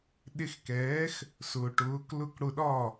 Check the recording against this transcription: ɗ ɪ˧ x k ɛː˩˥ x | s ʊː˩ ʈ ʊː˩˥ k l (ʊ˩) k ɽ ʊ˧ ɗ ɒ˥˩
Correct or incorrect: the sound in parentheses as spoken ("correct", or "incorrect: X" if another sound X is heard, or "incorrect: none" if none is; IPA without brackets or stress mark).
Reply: incorrect: ʊ˥˩